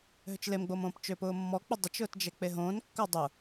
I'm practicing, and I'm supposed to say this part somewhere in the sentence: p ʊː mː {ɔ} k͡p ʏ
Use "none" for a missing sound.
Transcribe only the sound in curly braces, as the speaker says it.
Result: ɔ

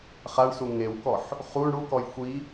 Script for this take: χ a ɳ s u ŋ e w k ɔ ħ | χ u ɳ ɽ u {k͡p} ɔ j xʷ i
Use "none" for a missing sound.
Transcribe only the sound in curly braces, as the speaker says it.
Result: k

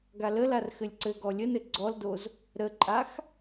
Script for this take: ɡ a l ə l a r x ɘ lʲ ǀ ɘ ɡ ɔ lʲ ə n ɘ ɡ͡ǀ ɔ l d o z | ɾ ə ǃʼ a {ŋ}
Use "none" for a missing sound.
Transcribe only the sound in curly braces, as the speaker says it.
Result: x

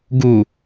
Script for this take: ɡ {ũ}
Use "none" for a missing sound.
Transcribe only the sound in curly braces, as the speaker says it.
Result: u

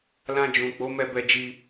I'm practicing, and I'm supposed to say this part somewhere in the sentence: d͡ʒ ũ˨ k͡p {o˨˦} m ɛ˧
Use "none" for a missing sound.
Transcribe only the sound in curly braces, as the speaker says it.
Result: o˨˦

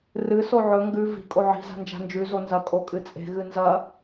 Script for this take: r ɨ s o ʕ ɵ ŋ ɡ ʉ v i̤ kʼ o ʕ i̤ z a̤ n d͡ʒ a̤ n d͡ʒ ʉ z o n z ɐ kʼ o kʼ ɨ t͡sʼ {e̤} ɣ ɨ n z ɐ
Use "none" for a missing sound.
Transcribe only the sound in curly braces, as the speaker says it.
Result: e̤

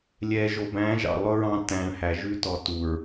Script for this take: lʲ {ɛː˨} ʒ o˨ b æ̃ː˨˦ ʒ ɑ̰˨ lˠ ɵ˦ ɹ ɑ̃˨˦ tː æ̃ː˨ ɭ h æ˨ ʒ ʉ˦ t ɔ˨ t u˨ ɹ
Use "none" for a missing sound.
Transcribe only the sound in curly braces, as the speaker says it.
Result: ɛː˨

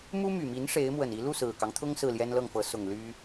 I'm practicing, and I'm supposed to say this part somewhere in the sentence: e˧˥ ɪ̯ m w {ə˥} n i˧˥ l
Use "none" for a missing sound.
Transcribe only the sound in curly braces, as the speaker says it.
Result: ə˨˩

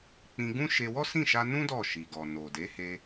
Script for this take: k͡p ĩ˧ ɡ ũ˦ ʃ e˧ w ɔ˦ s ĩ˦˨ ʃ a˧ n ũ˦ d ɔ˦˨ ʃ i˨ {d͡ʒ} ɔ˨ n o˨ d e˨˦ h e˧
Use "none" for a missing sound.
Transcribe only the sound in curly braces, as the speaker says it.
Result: ɡ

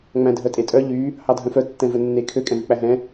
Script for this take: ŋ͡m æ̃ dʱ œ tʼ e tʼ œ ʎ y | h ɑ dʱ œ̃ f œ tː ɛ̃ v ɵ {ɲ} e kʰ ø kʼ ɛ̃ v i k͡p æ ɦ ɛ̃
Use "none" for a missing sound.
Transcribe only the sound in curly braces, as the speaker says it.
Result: nː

